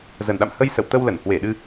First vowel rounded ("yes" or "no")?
no